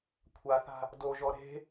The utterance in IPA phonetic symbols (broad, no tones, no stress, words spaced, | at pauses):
kʷʰaθa̤ | doʒɔ ɾe̤